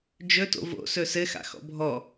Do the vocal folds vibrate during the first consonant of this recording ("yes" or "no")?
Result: yes